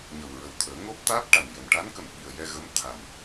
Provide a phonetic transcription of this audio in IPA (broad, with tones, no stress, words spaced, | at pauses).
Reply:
ɲə˨˩wɹə˨˩wt̪ʰəː˨˩˦ ŋo˦˥p̚t̪aː˦˥p̚ʈa˨˩njə˨˩m ʈa˧˥nkə˨˩mɓi˨˩ə̯ jɛ˧ɣə˧˥m t̪ʰa˨˩m